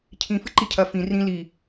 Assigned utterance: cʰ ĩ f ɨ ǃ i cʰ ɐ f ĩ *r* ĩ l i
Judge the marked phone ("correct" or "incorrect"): correct